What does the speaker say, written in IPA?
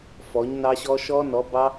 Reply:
f ɔ˨˥ ɲ n ɑ˦˥ ɕ ɔ˦˥ ʃ ɔ˦˥ n ɔ˨˥ b ɑ˦˥

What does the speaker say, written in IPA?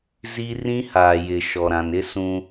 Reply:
z i˦ r ĩ˦ h aː˨ j ɪ˨ ʃ ɔ˨ ɾ ã˨ n ɪ˦ s ũ˦

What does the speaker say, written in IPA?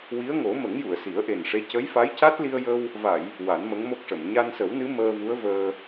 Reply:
w i˧˥ ə̯ ŋ o˨˩˦ m ə˨˩˦ ŋ j u˨˩˨ ə̯ s i˨˩˦ ə̯ ʔ e˨˩ n ʂ e˧˥ c ə˧˥ j f a˧˥ j c a˦˥ t̚ l i˧ ə̯ j ə˧ w | v a˨˩˨ j | w a˨˩˦ n m ə˧˥ ŋ m o˦˥ k̚ ʂ ə˨˩˨ m ɲ a˧ n s ə˨˩˦ w n ɨ˧˥ m əː˧ v u˧˥ ə̯ v əː˧

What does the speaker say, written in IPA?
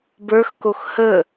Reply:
b ə˞ x k o x h ə

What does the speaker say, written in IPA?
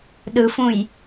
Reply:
ɗ ɯ f ũ j

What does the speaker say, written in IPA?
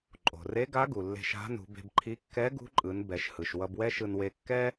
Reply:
ǃʼ o̤˩ r e˧˥ ɡ a˧˥ ɡ u˩ lː e̤˧ ʃ a̤˧˥ n ṳ˩˧ b e̤˧ b ǃʰ i˧˥ kː ɛ˧˥ ɡ ṳ˧˥ ǃʼ ɯ˩˧ n b ɛ˩˧ ʃ h ɯ˩ ʃ w ʌ˧ b w ɛ˥ ʃ ɯ˧ n w e˧ kː ɛ˥

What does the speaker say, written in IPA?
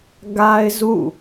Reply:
ɡ a˦ ɪ̯ z ṵ˦˨

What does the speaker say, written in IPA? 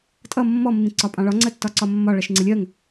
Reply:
tʼ ʌ mː ɔ mː ĩ ǀ ɒ pʼ ɑ̃ ɭ ɒ ŋ͡ǀ ɜ tː ɒ ǀ ɒ mː ɒ ɭ ɜ ʃ ŋ͡ǀ ɪ lʲ ɜ ŋ

